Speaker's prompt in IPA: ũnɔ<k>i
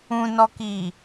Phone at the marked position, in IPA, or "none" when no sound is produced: k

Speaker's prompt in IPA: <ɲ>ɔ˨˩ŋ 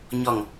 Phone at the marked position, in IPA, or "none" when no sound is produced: ɲ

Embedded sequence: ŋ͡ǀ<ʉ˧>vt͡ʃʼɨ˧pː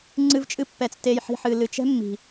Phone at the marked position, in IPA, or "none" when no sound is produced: ɨ˧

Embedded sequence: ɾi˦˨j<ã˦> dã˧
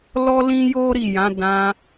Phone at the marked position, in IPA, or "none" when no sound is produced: ã˨˦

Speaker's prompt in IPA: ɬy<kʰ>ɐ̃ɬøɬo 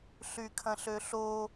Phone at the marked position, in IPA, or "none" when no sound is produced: kʰ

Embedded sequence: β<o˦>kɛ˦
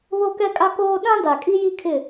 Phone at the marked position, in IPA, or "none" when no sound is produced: o˦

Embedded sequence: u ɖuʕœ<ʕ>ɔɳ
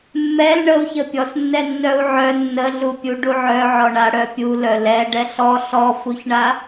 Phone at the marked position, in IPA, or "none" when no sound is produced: ʕ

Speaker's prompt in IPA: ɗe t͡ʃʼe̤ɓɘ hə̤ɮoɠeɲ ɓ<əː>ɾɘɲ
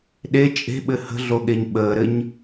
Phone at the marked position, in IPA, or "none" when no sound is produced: əː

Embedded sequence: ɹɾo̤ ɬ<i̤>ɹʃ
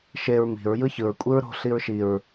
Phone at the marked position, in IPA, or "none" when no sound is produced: i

